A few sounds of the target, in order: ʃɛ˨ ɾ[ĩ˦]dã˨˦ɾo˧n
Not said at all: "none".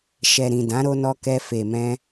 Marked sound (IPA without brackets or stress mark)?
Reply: ĩ˨